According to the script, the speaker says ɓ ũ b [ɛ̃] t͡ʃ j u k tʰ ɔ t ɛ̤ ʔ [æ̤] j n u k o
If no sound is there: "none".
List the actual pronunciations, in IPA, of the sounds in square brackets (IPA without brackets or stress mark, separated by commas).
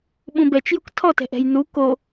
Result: ɛ, ɛ̤